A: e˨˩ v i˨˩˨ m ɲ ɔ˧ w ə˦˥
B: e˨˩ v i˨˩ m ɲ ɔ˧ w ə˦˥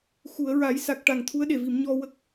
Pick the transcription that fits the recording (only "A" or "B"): A